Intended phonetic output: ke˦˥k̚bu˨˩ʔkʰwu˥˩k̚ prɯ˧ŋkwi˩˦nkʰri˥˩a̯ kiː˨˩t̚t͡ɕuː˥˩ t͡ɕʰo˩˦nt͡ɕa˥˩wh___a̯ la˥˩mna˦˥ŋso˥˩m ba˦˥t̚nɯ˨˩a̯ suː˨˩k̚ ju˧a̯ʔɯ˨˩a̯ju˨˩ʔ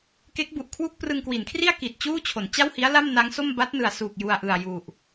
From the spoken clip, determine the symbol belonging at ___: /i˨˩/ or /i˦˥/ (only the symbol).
i˦˥